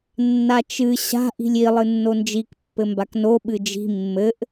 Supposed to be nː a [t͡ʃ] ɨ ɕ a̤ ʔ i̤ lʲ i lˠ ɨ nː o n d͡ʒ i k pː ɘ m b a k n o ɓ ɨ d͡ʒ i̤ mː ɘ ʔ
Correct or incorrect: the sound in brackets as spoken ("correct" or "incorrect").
correct